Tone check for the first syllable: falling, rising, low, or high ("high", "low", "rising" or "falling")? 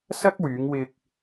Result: high